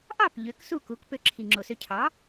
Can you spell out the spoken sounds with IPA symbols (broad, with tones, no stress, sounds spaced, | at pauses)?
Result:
ʔ ɑ˥˩ p ʎ ø˩˥ k s u˥˩ k u˩˥ k p ø˩˥ ǁʰ i˩ ŋ͡ǁ o˩ s ø˧ cʰ ɑ˩˥